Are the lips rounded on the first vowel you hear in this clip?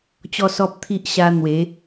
yes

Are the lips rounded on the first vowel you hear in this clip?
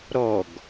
yes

